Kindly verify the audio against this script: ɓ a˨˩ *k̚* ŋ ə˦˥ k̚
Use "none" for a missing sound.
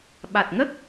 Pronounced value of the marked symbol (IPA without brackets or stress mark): t̚